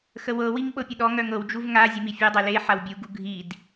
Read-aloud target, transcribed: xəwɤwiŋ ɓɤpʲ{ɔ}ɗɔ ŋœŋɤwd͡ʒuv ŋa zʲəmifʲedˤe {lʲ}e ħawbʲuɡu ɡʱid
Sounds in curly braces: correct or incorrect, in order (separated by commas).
incorrect, incorrect